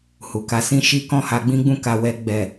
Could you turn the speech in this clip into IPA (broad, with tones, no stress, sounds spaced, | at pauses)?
h u˨ k a˨˦ s ĩ˦ ʃ i˦ k ɔ̃˦˨ h a˧ ɡ͡b ĩ˦ ɡ͡b ũ˦˨ k a˨ w ɛ˧ ɡ͡b ɛ˨